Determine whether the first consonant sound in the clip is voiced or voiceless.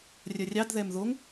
voiced